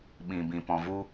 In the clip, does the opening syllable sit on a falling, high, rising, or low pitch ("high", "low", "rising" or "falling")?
low